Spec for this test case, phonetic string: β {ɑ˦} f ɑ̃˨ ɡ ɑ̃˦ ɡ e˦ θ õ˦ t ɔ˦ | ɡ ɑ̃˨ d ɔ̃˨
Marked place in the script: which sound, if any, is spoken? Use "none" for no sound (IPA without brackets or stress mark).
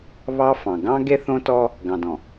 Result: ɑ˦